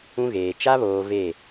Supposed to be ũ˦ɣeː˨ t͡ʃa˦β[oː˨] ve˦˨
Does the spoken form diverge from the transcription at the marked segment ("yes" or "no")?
no